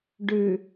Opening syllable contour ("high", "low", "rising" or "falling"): low